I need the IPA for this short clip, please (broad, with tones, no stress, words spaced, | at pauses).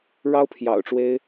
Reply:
ɻɑ˥ʊ̯pʰjɑ̰˨˩ʊ̯ʈ͡ʂwe˥ɪ̯